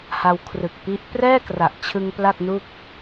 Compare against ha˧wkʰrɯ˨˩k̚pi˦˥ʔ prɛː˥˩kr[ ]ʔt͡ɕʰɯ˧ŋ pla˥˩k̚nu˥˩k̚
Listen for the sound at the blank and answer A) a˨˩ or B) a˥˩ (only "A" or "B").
A